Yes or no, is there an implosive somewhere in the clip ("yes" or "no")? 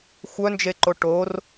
no